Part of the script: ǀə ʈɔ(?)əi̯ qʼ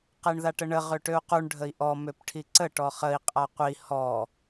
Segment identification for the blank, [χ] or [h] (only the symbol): χ